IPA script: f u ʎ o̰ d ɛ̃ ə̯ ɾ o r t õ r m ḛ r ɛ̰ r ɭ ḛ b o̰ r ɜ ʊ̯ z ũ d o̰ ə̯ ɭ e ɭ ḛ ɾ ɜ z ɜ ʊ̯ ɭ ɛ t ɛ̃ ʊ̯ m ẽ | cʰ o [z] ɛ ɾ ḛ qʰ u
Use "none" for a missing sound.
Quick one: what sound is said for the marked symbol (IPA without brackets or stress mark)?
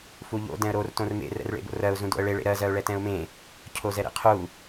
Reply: z